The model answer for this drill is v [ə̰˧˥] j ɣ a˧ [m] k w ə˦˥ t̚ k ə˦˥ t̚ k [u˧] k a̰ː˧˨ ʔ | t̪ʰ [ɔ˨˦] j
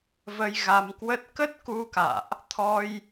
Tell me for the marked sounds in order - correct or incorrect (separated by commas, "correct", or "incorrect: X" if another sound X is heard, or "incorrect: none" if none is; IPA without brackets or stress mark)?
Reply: incorrect: ə˧, correct, correct, incorrect: ɔ˧